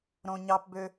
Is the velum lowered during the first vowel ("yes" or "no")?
yes